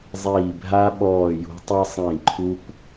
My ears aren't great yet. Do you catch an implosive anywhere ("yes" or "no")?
yes